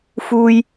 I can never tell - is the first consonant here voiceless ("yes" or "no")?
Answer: yes